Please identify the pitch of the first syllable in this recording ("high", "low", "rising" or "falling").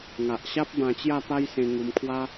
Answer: low